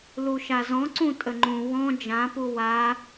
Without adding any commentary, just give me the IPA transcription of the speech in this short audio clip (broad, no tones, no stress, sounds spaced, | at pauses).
l u ʃ a z ɔ̃ ǀ ũ tʼ ə ŋ͡ǃ ũ w ɔ̃ d͡ʒ ã p u w a